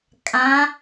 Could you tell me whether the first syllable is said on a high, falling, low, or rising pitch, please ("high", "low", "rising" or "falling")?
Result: rising